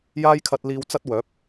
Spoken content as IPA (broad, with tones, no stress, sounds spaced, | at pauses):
j aː˥ j kʰ ɐ˧ t̚ l iː˧ w t͡s ɐ˥ t̚ w œː˨˥ p̚